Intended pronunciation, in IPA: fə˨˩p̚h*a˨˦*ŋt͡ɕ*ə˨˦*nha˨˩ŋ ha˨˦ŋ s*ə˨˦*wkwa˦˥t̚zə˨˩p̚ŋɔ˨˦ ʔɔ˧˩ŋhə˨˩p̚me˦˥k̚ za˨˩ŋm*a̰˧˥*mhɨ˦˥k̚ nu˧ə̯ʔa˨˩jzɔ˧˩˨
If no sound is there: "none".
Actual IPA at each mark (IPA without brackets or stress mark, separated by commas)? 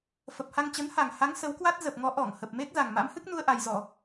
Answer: a˧, ə˨˦, ə˨˦, a̰˧˥